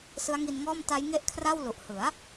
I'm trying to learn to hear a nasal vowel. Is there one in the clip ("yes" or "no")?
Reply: no